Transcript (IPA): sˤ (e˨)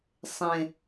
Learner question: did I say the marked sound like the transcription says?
no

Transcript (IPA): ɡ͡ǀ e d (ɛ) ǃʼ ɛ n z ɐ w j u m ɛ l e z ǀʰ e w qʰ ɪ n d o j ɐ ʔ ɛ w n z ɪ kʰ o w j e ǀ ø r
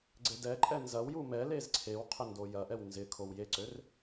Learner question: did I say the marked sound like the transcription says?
yes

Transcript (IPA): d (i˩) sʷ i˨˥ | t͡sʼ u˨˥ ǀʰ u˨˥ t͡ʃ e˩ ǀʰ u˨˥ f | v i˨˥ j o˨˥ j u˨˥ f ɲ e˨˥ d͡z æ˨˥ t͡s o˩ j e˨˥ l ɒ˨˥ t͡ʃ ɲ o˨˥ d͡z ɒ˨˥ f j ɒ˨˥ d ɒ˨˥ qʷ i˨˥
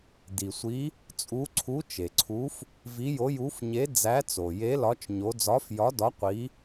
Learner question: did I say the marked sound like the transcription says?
yes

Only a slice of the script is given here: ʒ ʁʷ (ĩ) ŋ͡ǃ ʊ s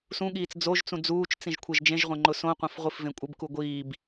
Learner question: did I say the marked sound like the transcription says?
no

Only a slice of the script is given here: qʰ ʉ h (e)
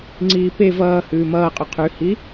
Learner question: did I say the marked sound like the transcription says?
no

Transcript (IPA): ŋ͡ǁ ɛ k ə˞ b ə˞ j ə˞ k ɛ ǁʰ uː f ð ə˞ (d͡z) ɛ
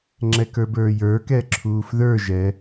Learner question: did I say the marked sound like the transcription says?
no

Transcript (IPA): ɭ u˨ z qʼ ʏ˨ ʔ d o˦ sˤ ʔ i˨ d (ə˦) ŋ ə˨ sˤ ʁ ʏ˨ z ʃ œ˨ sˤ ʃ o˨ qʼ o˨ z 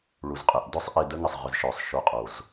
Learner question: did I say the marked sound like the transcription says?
yes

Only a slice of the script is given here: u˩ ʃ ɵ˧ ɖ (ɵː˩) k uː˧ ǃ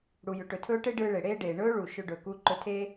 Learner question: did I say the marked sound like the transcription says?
yes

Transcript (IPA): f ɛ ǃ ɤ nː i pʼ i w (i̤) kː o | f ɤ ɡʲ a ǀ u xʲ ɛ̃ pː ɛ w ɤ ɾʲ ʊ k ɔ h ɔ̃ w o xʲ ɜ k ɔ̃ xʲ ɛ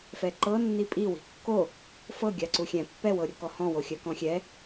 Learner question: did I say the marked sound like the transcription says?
yes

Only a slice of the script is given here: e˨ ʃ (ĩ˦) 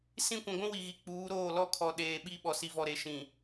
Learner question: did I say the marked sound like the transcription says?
no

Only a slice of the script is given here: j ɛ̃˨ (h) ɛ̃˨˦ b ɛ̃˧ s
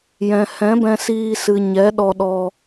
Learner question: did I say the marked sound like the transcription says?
yes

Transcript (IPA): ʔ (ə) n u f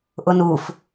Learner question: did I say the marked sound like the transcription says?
no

